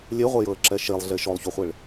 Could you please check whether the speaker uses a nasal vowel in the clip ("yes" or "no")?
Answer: no